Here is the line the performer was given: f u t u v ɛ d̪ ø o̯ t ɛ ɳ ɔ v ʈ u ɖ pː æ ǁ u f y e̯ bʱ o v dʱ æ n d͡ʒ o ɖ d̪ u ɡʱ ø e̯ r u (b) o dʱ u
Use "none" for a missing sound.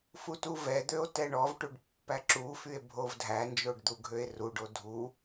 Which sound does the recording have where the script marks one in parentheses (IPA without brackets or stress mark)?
ɖ